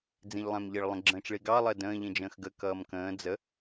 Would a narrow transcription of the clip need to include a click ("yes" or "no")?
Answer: yes